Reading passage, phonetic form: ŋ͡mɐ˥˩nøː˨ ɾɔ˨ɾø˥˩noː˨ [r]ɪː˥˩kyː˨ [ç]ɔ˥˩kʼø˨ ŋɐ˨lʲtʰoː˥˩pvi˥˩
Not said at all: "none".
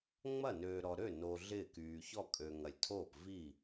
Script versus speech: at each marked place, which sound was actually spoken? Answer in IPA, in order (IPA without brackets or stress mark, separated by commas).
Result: ɮ, ç